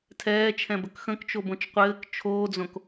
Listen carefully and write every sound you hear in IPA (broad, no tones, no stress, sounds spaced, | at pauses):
tʰ ɛː t͡ʃʰ ɛ̃ b ə k x ə̃ k t͡ʃ o b õ t͡ʃ qʷ ɘː k t͡ʃʰ oː d͡z õ k